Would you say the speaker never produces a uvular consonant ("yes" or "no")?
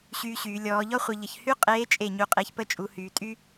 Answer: no